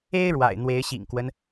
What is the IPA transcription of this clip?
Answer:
e˦ ɪ̯ ɻ w a̰˨˩ ɪ̯ n̪ w e˨˦ ɪ̯ ɕ ḭ˨˩ ŋ k w ə˦ n

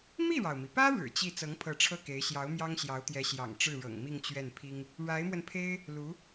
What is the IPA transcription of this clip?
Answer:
m i˥˩ ɻ ɑ˩ ʊ̯ m i˩ p ä˥ ɻ ɻ̩˨˩ t͡ɕ i˥˩ t͡s ɤ˧˥ ŋ pʰ ɤ˧˥ ʈ͡ʂʰ ɤ˥˩ k e˧˥ ɪ̯ ɕ j ɑ˧˥ ʊ̯ m j ɑ˥ ŋ ɕ j ɑ˧˥ ʊ̯ t̪ j ɛ˧˥ ɕ j ɑ̰˨˩ ŋ ʈ͡ʂ ɻ̩˥˩ ɻ ɤ̰˨˩ ŋ m i˥˧ ŋ t͡ɕ ɥ ɛ˥˩ n pʰ i˥ ŋ | ɻ a˧˥ ɪ̯ m w ə˧ n pʰ e˥ ɪ̯ | l u˧˥

